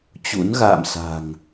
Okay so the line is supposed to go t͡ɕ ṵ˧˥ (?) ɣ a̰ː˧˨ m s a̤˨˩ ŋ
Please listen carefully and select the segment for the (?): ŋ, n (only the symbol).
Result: n